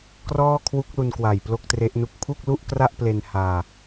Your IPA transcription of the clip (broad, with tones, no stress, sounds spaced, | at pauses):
k r ɔː˥˩ kʰ w u˦˥ k̚ l u˧ n k w a˨˩ j p l o˥˩ k̚ t r e˦˥ ʔ n u˥˩ k̚ pʰ u˥˩ k̚ l u˥˩ ʔ k r a˥˩ ʔ p l e˧ n h aː˧